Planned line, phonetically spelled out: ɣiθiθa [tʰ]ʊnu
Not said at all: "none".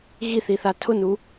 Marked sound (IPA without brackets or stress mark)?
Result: tʰ